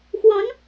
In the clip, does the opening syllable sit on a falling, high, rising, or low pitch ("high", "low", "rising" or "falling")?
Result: rising